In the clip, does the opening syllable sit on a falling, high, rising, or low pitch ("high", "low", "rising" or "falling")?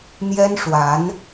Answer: high